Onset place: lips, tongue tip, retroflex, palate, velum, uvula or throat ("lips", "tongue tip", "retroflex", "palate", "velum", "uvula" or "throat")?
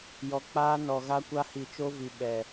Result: palate